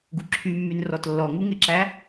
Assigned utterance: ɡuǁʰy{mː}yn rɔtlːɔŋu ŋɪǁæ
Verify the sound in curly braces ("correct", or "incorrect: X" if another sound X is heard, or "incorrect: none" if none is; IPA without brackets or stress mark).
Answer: correct